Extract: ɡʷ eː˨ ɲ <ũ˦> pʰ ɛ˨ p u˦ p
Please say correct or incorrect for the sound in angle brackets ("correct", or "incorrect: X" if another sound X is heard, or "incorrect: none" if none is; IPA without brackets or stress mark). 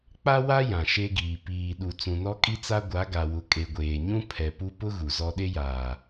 correct